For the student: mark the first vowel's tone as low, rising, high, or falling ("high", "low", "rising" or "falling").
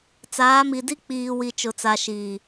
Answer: rising